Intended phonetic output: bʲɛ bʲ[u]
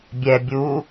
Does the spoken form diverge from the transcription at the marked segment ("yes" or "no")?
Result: no